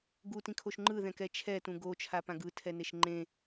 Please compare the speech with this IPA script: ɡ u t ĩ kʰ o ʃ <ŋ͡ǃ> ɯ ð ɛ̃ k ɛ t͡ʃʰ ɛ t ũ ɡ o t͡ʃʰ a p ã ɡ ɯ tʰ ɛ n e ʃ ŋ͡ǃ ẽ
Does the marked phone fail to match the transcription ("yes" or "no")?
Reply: no